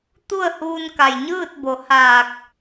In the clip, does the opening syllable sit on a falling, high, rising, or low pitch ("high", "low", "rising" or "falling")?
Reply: falling